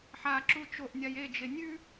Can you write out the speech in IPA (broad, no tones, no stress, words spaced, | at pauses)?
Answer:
ħaǁu t͡ʃoʔnʲaj ed͡ʒe nʲʉ